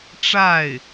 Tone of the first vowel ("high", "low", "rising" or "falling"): falling